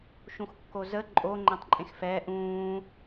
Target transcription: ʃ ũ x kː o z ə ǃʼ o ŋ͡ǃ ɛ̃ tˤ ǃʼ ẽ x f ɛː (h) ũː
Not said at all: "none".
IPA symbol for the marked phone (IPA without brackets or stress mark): ʔ